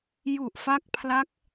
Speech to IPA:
j u˨˩ ʔ f a˦˥ k̚ pʰ l a˦˥ k̚

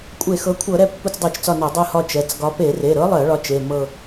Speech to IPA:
kʷʼ e˧˩˧ x ɤ˩˥ kʷʰ ɤ˧˩˧ ɾ ɛ˦˨ pː u˦˨ t͡s dˤ ɜ˧˩˧ t͡ʃ t͡s ɒ˦˨ n ɒ˧˩˧ dˤ ɤ˦˨ h ɒ˦˨ t͡ʃ ɛ˩˧˩ t͡s ɡ ɒ˧˥ p e˧˩˧ r e˩˧˩ ɾ ɤ˧˥ lˠ ɜ˧˩˧ ɭ ɒ˧˥ t͡ʃ e˩˧˩ m ɤ˦˨

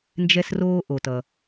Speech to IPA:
n d͡ʒ ɛ˧ s r oː˧ ʔ o˩ t ʌ˩

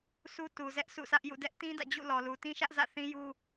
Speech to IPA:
s u˦ t u˨ z ɛ˦ ʔ sʰ ṵ˦˨ sʰ ä˦ ʔ j ṵ˦˨ d ɛ˦ ʔ t ĩ˦ d ä̰˦˨ d͡ʑ ṵ˦˨ l ɔ˨ l u˨ t ĩ˦ ʃ ä˦ ʔ z ä̰˦˨ θ ĩ˦ j u˦

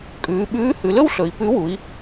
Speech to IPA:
kʼ ʉː˩˧ ɓ ʉː˧˥ h ʉ˩˧ l ɵ˥ w ɬ ɵ˩˧ i̯ p ʉ˧˥ w u˩˧ i̯

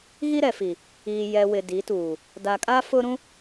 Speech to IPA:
ɣ i˦ ɾ ɛ˨ f i˨ | iː˨ j ɛ˨ w ɪ˨ d i˨˦ t uː˨ | d a˨ kʼ a˦ f ʊ˦ ɾ ũ˦

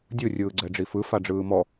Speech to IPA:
dʲ ɯ rʲ ɯː ɡ͡ǀ ɛ ɖ͡ʐ i f ɯ f a ɖ͡ʐ ɯː m ɔ

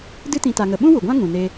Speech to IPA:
d ɨ˦ t ĩ˧ t a˧ ŋ ə˧ ɓ ũ˦ w u˨ ɡʷ ã˦ ŋ ũ˨ n e˧

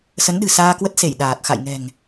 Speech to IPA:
s ə˨˦ n ɗ ɨ̤˨˩ s aː˧ k w ə˦˥ t̚ s e˧˩ j ɗ aː˨˩ t̚ x a̰˧˨ j ŋ ɛ̤˨˩ ŋ

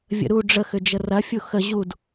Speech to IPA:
vʲ ə̰ ɾ u ɖ͡ʐ ə x ʏ d͡ʒ ə r ɐ fʲ u x ə ʑ u d

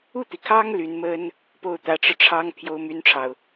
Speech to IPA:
u˥˩ t̪ i˩ kʰ ɑ˥ ŋ l y˧˥ n m ə˥ n | p o˥˩ ʊ̯ t̪ ä˧˥ ʈ͡ʂ ɻ̩˧ ʈ͡ʂʰ ɑ˥ ŋ pʰ j o˥ ʊ̯ m y˥ n ʈ͡ʂʰ ɑ˨ ʊ̯

